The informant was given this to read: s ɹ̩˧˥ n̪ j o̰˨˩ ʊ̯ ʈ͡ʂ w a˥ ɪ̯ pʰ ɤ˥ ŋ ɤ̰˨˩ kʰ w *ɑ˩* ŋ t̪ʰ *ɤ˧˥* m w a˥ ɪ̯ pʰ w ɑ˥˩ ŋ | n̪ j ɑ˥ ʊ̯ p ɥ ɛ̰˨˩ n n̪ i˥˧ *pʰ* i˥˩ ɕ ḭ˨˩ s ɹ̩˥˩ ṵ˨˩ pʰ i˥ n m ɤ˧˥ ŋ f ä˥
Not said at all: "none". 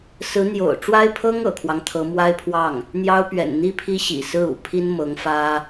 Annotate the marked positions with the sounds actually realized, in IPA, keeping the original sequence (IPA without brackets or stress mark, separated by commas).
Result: ɑ˦, ɤ˧˥, pʰ